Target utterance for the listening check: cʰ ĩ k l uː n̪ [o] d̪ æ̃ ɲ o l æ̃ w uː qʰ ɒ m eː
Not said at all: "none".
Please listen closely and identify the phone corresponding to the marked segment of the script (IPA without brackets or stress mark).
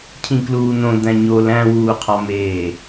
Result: õ